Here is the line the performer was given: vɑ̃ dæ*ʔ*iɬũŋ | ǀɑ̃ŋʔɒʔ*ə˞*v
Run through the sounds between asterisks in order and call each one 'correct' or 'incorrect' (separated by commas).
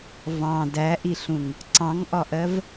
correct, incorrect